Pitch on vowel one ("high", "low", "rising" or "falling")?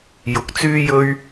low